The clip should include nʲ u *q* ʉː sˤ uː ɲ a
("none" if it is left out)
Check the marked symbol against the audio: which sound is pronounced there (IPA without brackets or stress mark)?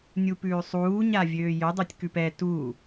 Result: p